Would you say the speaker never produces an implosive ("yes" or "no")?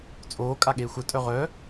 no